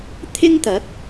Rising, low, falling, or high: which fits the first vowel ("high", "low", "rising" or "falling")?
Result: high